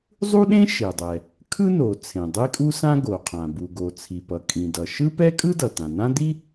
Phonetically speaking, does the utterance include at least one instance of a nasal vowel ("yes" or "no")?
yes